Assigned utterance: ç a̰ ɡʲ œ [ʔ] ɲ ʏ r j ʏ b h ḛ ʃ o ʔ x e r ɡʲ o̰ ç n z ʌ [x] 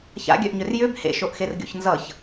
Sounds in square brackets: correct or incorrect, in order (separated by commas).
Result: correct, incorrect